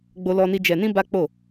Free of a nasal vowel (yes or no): no